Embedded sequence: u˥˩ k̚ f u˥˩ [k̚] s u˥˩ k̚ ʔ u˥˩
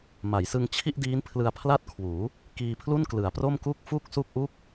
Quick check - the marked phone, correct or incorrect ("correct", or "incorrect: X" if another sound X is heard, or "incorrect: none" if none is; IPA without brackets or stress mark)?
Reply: correct